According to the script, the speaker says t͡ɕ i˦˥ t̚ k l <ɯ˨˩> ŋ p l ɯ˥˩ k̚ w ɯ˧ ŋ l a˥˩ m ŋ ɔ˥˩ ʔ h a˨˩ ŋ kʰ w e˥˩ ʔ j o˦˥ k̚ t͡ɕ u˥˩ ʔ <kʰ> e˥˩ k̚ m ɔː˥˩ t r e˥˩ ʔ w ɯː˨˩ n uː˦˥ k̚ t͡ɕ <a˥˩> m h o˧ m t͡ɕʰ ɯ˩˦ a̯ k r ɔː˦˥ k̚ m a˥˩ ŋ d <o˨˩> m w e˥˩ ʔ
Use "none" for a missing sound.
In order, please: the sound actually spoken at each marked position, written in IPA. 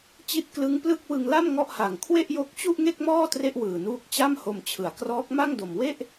ɯ˦˥, ŋ, a˥˩, o˨˩

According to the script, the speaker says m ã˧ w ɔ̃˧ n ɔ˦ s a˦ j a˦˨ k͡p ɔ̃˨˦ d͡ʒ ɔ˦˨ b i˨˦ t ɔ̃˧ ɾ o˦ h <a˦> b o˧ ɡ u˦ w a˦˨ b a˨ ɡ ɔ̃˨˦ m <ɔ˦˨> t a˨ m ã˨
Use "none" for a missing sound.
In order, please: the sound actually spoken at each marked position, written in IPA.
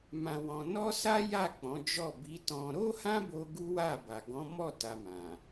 ã˦, ɔ˦˨

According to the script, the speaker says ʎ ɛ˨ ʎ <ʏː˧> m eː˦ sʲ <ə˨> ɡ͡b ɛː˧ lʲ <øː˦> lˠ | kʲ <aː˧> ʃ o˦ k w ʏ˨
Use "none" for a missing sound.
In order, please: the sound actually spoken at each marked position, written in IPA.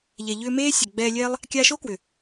ʏː˧, ɛ˨, ɛː˦, aː˧

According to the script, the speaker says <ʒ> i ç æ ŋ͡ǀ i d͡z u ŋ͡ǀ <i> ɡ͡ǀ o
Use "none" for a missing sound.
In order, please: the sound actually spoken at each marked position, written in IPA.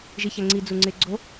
ʒ, e

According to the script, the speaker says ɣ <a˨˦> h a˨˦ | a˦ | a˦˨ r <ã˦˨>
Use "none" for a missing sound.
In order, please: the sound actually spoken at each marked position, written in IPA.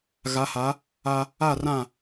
a˨˦, ã˦˨

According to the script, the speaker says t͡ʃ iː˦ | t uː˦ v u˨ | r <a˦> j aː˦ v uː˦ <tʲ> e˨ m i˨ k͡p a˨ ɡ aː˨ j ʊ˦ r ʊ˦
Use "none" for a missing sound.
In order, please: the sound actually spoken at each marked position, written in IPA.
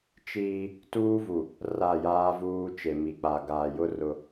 a˦˨, t͡ʃ

